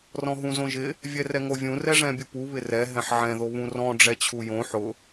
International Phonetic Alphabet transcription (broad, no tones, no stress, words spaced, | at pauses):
rɔ̃ɦũzõʒɪ | vʲɛrɛŋovʲũ rɛʐɛ̃bʲupu βɪrɛ ɦɛ̃ħʕɛ̃ ðoβũrɔ̃ ɖ͡ʐɛt͡ɕʰujõ ħʊ